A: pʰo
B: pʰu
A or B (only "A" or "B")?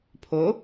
A